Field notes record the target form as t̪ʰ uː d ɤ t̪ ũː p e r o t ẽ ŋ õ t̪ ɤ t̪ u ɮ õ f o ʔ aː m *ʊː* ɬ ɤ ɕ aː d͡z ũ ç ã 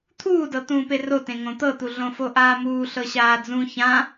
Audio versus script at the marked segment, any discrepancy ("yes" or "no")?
yes